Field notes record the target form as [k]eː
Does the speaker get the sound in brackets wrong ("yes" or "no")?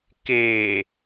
no